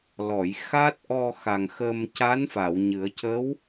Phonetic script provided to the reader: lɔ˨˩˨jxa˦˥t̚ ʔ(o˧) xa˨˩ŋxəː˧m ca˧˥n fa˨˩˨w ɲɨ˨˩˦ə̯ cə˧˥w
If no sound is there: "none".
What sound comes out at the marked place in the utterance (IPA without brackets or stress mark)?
ɔ˧